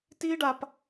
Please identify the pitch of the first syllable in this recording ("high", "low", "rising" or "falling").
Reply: high